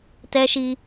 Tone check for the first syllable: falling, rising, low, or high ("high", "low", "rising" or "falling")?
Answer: high